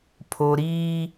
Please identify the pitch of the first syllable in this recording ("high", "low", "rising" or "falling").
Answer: high